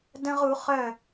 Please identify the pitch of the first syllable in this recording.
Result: high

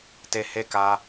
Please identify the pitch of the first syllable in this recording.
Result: low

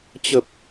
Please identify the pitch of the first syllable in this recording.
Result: low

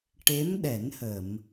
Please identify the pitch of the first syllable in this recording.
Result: rising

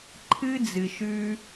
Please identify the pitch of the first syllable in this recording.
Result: high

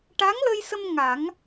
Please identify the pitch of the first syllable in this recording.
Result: rising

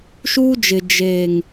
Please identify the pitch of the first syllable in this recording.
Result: high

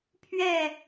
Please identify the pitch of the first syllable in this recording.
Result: falling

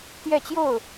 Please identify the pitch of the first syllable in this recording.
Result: falling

